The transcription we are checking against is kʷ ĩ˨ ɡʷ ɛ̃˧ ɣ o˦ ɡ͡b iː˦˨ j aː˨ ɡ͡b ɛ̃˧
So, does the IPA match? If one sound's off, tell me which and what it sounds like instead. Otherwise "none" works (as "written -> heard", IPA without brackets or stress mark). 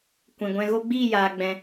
none